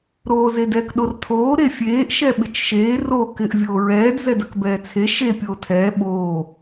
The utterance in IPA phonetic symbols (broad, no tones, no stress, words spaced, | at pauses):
ɾoːzedɛk ɗortʰoː ɾefʲeːʔ ʃɛɓɪt͡ʃʃeː ro kɪʔ vʲoːɹɛːd zɛdɐkbɛːt͡sʰe ʃe pʲoːtʰɛː ɓoː